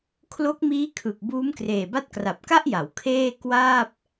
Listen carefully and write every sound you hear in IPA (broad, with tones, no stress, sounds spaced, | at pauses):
kʰ l o˦˥ k̚ m iː˦˥ kʰ ɯ˨˩ k̚ b uː˦˥ m k r eː˨˩ b a˥˩ t̚ k r a˨˩ p̚ k a˥˩ ʔ j a˩˦ w kʰ eː˥˩ k w aː˥˩ p̚